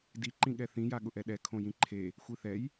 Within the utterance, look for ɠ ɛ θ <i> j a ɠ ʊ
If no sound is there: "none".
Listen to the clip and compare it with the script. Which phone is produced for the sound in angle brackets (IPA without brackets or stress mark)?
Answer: ĩ